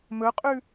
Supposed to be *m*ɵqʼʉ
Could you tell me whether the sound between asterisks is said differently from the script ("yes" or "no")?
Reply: no